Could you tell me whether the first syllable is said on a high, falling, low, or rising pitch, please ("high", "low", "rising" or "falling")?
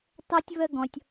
high